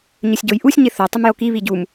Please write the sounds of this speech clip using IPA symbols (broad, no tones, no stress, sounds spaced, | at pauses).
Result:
ɲ ɵ sʲ ɟ o j ʔ u sʲ ɲ ɪ θ o tˤ ɵ m j o k i β i ɟ u m